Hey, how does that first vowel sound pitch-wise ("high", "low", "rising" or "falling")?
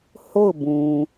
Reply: falling